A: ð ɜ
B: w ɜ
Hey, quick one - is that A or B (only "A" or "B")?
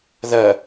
A